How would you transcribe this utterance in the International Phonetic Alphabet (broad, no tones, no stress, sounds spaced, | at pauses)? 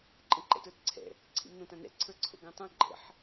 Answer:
ǃʼ ə̃ ǃ ɛ̰ t ə˞ t ǀʰ ɛ̰ | ǀʰ ḭ m n õ t ã n ɛ̰ ǀʰ ə˞ ǀʰ o̰ ɡ ɐ̃ tˤ ã ɡ͡ǃ ə̰ ħ